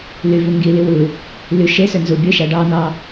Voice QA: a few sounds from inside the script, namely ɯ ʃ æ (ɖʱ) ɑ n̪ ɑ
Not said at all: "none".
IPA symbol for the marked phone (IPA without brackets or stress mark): ɖ